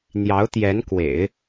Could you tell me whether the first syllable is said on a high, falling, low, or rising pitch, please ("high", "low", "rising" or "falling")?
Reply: rising